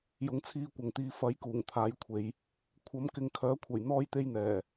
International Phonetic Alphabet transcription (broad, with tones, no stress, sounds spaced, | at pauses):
j ʊ˨˧ ŋ t͡sʰ iː˧ kʷ ɐ˨ ŋ t̪ iː˨˧ f ɐ˨˥ j k uː˨˩ ŋ t̪ʰ aː˨˥ j kʷʰ e˨˧ j | kʷʰ ɐ˨˥ m k ɪ˧ ŋ kʰ œː˨˥ kʷʰ ɐ˨˩ j n̪ ɔː˥ j t̪ e˥ j n̪ ɛː˨˩